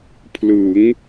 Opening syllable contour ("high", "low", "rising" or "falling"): rising